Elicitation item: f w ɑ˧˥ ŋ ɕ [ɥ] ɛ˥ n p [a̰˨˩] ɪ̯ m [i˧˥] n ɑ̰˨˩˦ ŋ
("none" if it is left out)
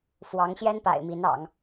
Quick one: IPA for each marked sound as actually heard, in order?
j, a̰˨˩, i˧˥

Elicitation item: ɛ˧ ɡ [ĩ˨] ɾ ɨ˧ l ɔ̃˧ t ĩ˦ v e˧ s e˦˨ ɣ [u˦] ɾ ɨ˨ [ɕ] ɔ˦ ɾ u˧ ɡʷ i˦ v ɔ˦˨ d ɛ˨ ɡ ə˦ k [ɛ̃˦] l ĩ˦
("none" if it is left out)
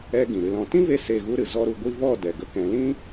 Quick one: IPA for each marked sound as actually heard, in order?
ĩ˨, u˦, z, ɛ̃˨

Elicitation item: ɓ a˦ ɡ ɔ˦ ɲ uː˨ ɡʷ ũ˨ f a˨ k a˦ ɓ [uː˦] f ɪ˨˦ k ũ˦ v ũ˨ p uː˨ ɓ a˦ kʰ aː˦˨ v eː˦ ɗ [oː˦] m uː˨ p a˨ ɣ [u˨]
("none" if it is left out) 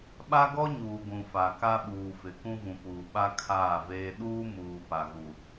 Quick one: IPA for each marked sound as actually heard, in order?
uː˨, uː˦, u˨

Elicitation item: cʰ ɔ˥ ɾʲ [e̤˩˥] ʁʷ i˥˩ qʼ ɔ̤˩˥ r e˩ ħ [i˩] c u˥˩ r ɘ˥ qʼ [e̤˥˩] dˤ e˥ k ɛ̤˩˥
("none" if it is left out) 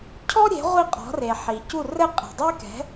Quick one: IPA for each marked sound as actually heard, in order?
e̤˩˥, i˩, e̤˩

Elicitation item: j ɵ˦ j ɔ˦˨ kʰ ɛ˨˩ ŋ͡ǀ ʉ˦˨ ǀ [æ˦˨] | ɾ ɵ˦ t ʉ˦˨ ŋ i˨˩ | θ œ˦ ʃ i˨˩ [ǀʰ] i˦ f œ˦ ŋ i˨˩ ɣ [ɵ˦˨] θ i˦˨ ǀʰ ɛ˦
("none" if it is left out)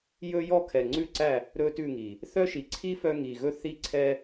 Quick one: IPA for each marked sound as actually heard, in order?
æ˦˨, ǀʰ, ɵ˦˨

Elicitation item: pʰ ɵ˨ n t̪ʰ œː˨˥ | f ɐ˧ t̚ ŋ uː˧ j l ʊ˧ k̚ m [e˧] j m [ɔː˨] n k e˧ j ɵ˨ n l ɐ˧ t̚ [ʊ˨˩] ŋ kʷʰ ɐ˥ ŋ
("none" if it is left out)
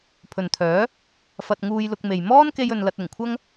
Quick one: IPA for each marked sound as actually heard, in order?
e˨, ɔː˥, ʊ˨˩

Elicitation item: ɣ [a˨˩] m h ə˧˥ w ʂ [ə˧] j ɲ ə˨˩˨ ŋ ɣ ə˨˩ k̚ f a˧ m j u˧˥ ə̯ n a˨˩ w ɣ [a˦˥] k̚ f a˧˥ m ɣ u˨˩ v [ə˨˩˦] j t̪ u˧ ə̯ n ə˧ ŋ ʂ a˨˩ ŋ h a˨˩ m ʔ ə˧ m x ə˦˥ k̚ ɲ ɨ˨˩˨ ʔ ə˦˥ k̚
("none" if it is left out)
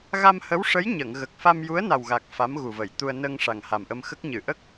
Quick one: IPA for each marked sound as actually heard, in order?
a˧, ə˧˥, a˨˩, ə˨˩˨

